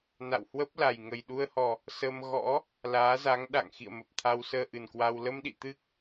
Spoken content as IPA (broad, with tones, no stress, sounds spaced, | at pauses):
n a̰˧˨ w h w ə˦˥ p̚ l a˨˩ j ŋ ə˨˩ j ɗ u˧ ə̯ h ɔ˨˩ | s ə˧ m ɣ ɔ̰˧˥ | l aː˨˦ z a˨˦ ŋ ɗ a̰˧˨ ŋ x ḭ˧˨ ə̯ m ə˨˩ p̚ t̪ʰ a˧ w s əː˧ ʔ ɨ˨˩ n k w a˧ w l ə˧ m ɗ ḭ˧˨ t̪ ɨ˦˥ k̚